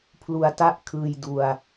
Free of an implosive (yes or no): yes